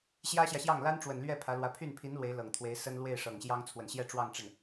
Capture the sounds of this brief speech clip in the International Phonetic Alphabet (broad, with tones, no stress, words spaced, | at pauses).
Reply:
ɕjä˥ɕjä˨ɕjɑ˥˩ŋ la˥nʈ͡ʂwə˨˩nlɥɛ˥˩ pʰä˧˥lwä˧˥ pʰy˥˩npʰi˧˥n lwe˧˥ɪ̯lɤ˨˩ŋt̪ʰwe˧˥ɪ̯sə˥n lwe˥˩ɪ̯ʂɤ˨˩ŋɕjɑ˥ŋ t͡sʰwə˨˩nɕjɛ˥˧ʈ͡ʂwɑ˥˧ŋʈ͡ʂə˥˩n